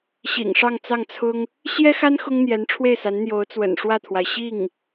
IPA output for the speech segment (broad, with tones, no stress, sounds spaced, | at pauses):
ɕ ḭ˨˩ ŋ ʂ ɑ˥˧ ŋ t͡s ɑ˥˩ ŋ t͡sʰ ʊ˥ ŋ | ɕ j ɛ˥ x a˥ n x ʊ˥ ŋ n̪ j ɛ˧˥ n ʈ͡ʂʰ w e˥˩ ɪ̯ s a˧˥ n n̪ j o˧˥ ʊ̯ t͡s w ə̰˨˩ n ʂ w ä˥˩ t̪ʰ w a˩ ɪ̯ ɕ i˥˩ ŋ